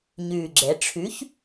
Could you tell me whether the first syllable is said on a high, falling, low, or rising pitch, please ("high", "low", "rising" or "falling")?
low